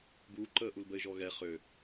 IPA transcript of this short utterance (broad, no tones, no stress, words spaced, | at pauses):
buːǃəːʔulbəɪ̯ ʒɔɣɛ χø